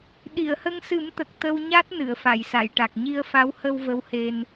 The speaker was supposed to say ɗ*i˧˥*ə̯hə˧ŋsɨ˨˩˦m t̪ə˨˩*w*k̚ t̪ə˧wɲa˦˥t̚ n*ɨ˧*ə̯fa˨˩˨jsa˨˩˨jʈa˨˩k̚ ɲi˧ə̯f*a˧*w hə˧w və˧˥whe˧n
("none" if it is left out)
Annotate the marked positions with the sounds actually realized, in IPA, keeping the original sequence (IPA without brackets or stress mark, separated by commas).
i˨˩˨, none, ɨ˨˩˨, a˧˥